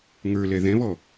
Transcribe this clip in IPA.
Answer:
ŋ ə˞ l ɛ ð ɛ̃ β ɔ

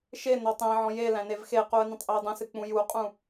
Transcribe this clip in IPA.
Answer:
ʃ e n ɔ tˤ æ̃ ʕ ɔ̃ j e l æ̃ n e v x e q u ə̯ n ə̃ tˤ ʔ e ə̯ dˤ ə̃ s ɨ k͡p ũ j u qʼ ũ

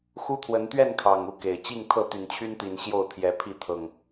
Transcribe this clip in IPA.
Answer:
x u˦ t̪ʰ w ə˨˦ n t̪ ɥ ɛ˥˨ n kʰ ɑ˨˩ ŋ u˥˨ k e˨˩ ɪ̯ t͡ɕ i˥˨ ŋ t̪ʰ ɤ˥˨ t̪ y˨˩ n t͡ɕʰ y˦ n t̪ i˨˩ n ɕ j o˥˨ ʊ̯ t̪ʰ j ɛ˨˦ pʰ i˥˨ t̪ʰ ɤ˨˩ ŋ

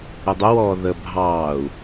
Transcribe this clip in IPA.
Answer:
ə dˤ ɛ w ɔː ð ə bʱ ɑː u̯

